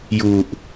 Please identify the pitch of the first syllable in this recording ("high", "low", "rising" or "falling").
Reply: low